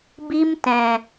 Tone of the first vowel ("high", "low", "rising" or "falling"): high